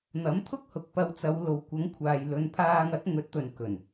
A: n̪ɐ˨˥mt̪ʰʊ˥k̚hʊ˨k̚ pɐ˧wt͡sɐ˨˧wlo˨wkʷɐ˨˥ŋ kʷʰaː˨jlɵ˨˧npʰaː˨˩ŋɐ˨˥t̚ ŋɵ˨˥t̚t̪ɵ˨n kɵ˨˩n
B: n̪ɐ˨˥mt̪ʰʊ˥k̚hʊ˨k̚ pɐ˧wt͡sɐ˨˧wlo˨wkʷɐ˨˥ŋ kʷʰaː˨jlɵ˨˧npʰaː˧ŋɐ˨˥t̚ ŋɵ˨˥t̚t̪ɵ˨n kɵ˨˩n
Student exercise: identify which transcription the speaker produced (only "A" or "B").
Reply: B